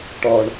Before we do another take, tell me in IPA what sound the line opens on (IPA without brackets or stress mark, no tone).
ʈ